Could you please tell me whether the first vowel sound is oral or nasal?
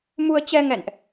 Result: oral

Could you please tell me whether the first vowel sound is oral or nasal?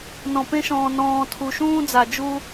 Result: nasal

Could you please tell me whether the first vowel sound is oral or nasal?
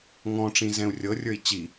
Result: nasal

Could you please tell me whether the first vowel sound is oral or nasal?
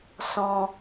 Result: nasal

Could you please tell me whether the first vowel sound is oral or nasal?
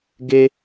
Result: oral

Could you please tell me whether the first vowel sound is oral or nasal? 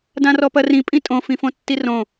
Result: nasal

